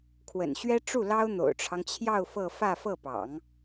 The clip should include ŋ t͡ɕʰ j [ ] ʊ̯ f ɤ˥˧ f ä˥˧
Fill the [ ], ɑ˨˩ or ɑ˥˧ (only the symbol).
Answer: ɑ˥˧